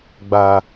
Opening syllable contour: low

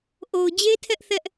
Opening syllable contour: low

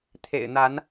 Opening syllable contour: low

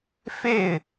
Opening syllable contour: falling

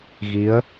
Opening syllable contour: rising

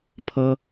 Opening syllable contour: high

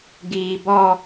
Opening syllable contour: low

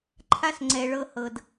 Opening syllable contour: high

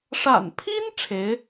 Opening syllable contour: low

